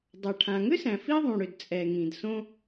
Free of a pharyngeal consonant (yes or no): yes